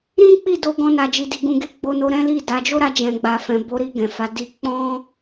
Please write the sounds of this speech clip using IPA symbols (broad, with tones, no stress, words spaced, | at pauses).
ɾĩ˦k͡pi˦˨do˧ ɡɔ̃˦na˧d͡ʒi˧di˧ ɡũ˧ɡe˦ɡ͡bo˧no˧ ɾɛ̃˦li˦˨da˨˦ d͡ʒo˦ɾa˧d͡ʒɛ̃˨ɡ͡ba˨ fɛ̃˨bo˨˦ɾi˧ ɡɛ̃˨fa˨˦di˦ k͡pɔ̃˦